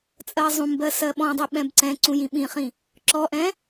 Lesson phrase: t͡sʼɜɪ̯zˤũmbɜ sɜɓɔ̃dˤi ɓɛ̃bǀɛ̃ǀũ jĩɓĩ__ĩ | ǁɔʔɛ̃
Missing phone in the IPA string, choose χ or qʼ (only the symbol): χ